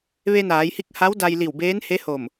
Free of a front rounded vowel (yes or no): yes